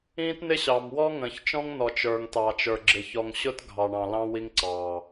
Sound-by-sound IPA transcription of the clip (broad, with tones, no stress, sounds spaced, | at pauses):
ĩː˦ t n ɪ˦ ɕ ɑ˨ m w ɔ˦ ŋ ə̃ː˨ ç t͡ʃ ɔ̃˦ ŋ n ɔ˨ t͡ʃ ə˞˨ ŋ t ɑ˨ t͡ʃ ə˞˨ ɡ͡ǁ ɪ˨ ç ɔ˨ ŋ ɕ ʊ˦ t ɡʱ ɑ˨ ɳ ɑ̃˨ l ɑ̃˦ w i˦ ŋ ǀ ɑː˨